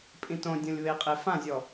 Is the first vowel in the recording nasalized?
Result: yes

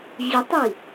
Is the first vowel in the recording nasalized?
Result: no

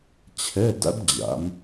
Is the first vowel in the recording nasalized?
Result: no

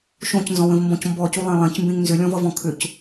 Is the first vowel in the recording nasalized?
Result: yes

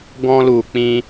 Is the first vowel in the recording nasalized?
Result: yes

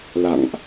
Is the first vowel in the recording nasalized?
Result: no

